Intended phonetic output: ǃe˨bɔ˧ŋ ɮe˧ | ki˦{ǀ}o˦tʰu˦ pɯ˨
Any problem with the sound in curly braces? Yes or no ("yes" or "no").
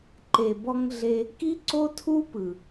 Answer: no